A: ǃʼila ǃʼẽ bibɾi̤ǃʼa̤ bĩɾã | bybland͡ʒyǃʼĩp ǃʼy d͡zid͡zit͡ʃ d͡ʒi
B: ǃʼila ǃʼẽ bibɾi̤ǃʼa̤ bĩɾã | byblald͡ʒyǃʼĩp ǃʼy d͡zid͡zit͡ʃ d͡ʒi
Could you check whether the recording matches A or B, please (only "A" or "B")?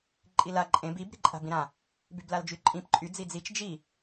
B